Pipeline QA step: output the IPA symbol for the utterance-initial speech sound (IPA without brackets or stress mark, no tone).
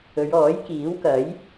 ɵ